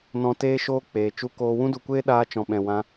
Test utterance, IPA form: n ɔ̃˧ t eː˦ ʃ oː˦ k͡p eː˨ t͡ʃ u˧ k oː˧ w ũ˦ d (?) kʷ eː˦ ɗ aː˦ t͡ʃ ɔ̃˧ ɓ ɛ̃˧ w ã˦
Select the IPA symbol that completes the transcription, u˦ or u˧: u˧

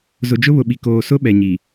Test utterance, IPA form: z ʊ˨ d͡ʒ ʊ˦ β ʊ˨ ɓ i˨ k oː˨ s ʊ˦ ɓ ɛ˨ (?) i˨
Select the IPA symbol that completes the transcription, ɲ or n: ɲ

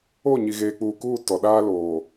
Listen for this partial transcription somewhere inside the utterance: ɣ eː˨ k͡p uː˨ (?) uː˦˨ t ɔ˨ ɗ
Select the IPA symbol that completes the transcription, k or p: k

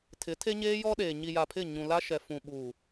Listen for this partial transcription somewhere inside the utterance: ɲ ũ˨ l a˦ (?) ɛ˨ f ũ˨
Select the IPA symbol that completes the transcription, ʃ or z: ʃ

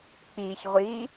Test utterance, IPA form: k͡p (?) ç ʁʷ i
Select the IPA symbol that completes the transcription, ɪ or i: i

